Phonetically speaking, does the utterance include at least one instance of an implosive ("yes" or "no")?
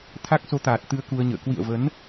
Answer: no